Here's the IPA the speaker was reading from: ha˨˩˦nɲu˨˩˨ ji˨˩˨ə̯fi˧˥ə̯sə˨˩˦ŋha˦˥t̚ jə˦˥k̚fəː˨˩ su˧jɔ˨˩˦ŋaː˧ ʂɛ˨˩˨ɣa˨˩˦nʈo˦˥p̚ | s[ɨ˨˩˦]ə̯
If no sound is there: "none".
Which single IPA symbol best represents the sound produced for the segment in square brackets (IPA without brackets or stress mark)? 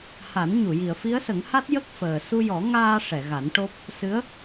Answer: ɨ˧˥